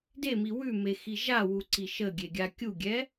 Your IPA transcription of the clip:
demi wʉmexi ʒawuǀi ʃəɡʲeɡʲa kʲuɡʲɛ

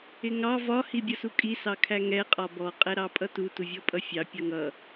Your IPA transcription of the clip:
ɪŋɑ vɒ hibʲʌsukʼi sɑkʰæŋɛ qʼɒbɔ qʼɛɾɑpʼʌtu tuvʲɔpʼʌfʲɑ pʲʌŋʌ

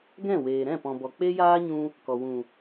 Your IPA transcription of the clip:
ɡɛ̃˦˨weː˨ ɾɛ̃˦˨pɔ̃˨bɔ˨ k͡pe˦jaː˦ɲũ˧ | kɔ˨wũ˨

